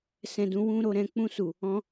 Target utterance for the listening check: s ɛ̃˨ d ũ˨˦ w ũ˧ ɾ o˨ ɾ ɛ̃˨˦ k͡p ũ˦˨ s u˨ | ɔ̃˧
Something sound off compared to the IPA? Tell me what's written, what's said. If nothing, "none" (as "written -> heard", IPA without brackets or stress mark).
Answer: none